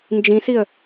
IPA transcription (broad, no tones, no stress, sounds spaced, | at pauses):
n d͡ʒ ĩ s i ə̯